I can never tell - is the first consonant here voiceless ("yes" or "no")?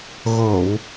no